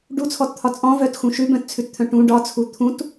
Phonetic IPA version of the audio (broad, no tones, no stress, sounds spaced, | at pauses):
ɖ u t͡sʰ ɔ t t̪ʰ ɒ t͡sʼ ɔ̃ v œ t x ũ ʃ ʉ b œ̃ t t͡sʰ ʉ t t̪ʰ œ̃ ʈ ũ ɖ ɒ t͡sʰ u t̪ʰ ũ t